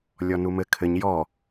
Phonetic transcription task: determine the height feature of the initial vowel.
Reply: mid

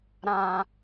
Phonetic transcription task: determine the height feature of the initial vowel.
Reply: low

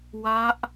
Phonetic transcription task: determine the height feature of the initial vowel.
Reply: low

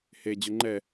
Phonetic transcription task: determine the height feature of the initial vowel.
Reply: mid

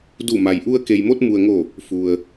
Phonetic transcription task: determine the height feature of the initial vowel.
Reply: high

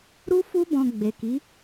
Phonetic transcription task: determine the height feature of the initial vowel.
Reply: high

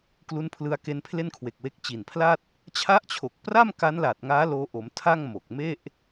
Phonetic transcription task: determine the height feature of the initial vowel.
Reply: high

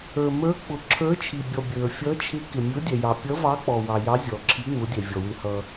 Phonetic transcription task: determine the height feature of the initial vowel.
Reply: mid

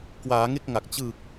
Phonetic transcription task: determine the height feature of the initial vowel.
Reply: low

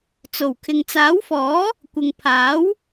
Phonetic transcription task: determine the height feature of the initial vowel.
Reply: mid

